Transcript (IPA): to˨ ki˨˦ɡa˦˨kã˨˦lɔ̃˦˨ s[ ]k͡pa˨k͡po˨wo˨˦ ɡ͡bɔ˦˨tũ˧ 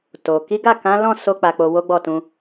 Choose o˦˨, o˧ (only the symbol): o˧